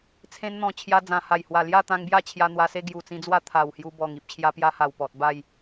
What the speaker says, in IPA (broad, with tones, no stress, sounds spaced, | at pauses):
t͡sʰ ẽ˧ n n̪ ɔ̃˨˩ t͡ɕʰ j a˧ d͡z ã˨˩ h a˨˩ j h w a˨˩ l j a˥˧ t̪ ã˧ ŋ b j a˥˧ t͡ɕʰ j a˧ n̪ w a˧ s e˦ ɡ j u˨˩ t͡s ĩ˧ d͡z w a˦ t̪ʰ a˨˩ w h j u˧ b ɔ˨˩ ŋ i˨ p̚ t͡ɕʰ j a˧ p j a˧ h a˨˩ w p ɔ˨ t̚ b a˥˧ j